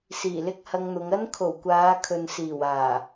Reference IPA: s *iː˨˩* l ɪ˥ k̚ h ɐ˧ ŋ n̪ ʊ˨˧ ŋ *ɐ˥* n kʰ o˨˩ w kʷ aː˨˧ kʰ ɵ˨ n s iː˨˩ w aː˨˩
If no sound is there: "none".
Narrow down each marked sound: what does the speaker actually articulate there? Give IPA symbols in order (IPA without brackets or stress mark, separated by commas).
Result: iː˨˩, ɐ˥